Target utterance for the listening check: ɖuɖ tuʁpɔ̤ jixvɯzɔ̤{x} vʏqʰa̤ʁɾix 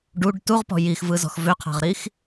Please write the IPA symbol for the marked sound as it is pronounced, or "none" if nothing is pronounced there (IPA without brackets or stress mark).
x